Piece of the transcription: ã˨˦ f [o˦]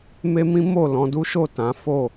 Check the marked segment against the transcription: incorrect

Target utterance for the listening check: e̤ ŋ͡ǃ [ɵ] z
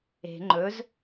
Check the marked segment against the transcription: correct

